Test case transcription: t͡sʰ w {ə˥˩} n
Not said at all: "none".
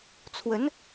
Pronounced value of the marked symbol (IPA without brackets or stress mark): ə˧˥